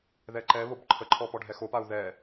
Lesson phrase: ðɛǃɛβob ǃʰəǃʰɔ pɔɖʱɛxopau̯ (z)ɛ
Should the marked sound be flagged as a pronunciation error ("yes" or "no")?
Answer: yes